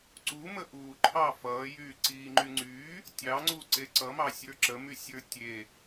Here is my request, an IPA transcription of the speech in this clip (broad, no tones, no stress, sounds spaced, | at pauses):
ǀ u m ə ʔ uː ǃʰ ɑ f ʌː j yː ǀ iː ŋ͡ǃ y ŋ͡ǀ yː | tʲ ɑ ŋ͡ǀ u ǀ e ǀ ʌ m ɑ sʲ ə˞ ǁ ə m y sʲ ə˞ tʲ e